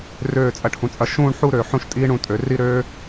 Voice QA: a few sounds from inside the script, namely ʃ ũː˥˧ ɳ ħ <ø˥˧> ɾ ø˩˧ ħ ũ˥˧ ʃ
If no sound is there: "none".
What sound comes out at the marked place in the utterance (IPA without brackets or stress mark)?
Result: u˥˧